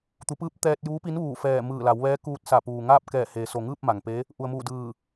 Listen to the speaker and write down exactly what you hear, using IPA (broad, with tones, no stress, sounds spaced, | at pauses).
t̪ u˩˧ p ɯː˧˥ p̚ t̪ ɛː˧ t̚ j uː˧˥ p i˧˥ n ʋ uː˧˩ f ɛː˧˩ m ɯː˧˩ l a˩˧ w ʋ ɛː˧˥ k uː˧ t̚ s a˧˩ p uː˩ ŋ aː˥˨ p̚ k ɛː˧˩ h eː˩˧ s o˩ ŋ ɯː˥˨ p̚ m a˩ ŋ p e˧˥ | ʔ u˩ ə̯ m uː˧˩ d ɯː˧˩